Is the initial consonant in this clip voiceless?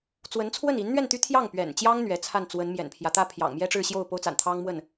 yes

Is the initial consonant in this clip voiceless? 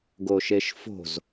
no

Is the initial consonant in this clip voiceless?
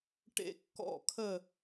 yes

